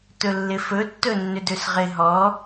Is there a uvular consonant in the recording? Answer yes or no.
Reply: yes